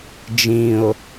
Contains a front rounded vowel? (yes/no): no